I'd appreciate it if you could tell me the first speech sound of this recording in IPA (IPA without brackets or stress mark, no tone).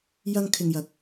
j